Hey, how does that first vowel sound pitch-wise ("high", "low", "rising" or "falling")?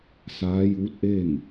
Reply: rising